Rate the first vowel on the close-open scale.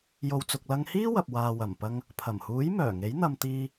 mid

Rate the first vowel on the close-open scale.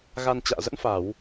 open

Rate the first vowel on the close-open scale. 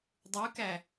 close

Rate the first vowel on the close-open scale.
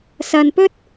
open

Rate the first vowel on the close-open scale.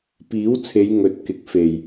close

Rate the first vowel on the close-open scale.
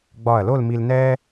open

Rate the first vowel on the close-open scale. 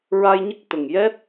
open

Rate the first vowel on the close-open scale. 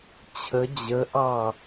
mid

